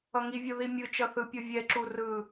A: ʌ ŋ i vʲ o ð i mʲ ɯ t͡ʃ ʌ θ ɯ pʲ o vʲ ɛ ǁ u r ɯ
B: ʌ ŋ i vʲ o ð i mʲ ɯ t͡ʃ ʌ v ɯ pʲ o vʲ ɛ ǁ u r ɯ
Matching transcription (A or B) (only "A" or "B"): A